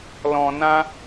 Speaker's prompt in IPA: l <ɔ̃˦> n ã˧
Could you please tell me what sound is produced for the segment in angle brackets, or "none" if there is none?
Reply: ɔ̃˨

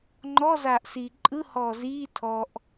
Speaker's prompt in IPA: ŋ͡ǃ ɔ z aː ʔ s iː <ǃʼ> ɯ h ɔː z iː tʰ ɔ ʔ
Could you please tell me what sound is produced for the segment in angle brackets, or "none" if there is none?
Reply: ǃʼ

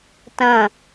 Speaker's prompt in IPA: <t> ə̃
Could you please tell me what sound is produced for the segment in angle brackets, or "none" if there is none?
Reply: t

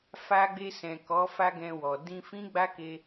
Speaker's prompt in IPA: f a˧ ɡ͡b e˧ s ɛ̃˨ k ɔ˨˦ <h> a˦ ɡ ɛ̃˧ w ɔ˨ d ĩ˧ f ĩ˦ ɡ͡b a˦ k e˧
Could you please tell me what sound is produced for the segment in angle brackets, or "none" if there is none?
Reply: f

